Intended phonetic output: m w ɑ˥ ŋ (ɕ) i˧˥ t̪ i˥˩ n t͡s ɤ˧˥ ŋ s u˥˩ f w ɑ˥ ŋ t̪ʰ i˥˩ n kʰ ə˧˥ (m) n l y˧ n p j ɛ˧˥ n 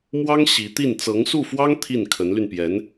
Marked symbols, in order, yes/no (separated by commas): yes, no